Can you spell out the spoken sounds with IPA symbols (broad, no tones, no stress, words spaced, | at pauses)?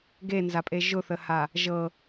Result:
ɡenzapʼe ʒʊθəha | ʒɤ